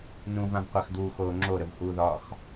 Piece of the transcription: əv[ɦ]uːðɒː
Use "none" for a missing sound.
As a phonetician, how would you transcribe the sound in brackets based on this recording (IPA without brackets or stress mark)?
h